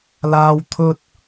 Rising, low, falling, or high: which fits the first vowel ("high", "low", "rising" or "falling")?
high